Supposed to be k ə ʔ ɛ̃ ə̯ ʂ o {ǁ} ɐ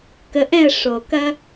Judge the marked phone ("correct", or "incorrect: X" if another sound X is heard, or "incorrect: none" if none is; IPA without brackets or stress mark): incorrect: k